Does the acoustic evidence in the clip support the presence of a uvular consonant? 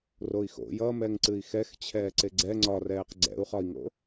yes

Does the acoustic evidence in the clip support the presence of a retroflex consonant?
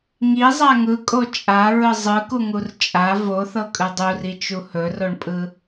yes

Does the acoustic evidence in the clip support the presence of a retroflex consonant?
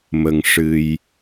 yes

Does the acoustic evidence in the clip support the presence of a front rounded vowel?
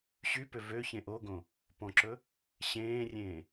yes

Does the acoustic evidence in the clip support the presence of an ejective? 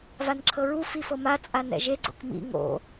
yes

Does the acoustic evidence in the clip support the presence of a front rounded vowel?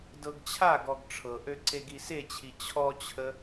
yes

